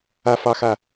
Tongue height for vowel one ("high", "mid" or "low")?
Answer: low